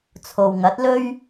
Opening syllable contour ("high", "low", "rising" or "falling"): low